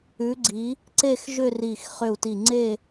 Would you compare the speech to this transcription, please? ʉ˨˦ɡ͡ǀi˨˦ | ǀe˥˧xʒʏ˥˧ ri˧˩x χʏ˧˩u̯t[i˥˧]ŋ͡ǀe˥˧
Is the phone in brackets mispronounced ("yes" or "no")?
yes